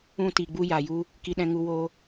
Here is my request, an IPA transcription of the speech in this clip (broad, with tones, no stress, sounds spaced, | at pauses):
ũ˧ t i˨ ɡ͡b u˧ j aː˨ j u˦ | k i˧ ɗ ɛ̃˧ ŋ u˧ w oː˦